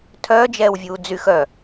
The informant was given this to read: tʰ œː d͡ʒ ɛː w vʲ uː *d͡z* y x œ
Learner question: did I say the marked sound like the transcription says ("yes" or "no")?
yes